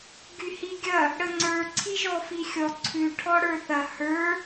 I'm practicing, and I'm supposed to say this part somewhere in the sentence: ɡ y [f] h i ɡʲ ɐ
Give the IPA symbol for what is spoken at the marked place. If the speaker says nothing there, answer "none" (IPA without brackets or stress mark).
none